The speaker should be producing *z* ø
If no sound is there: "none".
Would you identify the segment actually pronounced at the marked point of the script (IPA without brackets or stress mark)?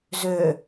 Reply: z